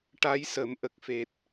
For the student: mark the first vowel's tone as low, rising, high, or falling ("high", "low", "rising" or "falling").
rising